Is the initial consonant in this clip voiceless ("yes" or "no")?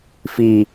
yes